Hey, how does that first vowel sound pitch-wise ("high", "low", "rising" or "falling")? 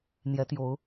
rising